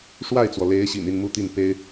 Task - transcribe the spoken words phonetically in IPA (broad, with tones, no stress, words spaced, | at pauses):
ʂwa˥˩ɪ̯t͡swɔ˩le˧˥ɪ̯ɕḭ˨˩n i˥˧nmu˥˧t̪i˥˩n pe˥ɪ̯